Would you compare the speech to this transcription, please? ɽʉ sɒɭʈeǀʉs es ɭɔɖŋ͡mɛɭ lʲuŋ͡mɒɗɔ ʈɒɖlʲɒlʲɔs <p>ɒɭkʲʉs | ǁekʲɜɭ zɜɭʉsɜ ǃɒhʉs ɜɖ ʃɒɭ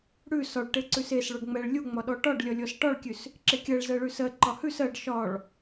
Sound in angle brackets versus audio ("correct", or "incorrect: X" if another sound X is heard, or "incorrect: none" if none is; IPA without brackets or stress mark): incorrect: ʈ